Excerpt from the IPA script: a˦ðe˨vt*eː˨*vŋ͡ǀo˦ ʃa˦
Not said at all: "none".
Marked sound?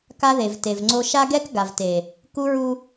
e˨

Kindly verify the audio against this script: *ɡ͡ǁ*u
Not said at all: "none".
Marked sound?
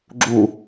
ɡ͡ǁ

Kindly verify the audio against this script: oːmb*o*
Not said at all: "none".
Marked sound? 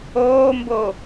o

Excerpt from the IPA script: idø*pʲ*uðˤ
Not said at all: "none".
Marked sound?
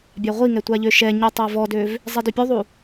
pʲ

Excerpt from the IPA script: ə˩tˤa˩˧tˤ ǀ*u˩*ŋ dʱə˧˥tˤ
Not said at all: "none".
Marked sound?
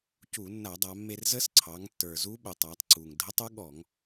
u˩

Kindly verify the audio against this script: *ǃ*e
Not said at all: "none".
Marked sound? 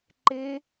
ǃ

